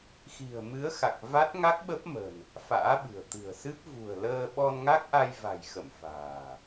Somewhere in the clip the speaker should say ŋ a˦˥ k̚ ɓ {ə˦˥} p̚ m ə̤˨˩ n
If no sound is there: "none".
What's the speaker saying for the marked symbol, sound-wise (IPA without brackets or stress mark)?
ə˦˥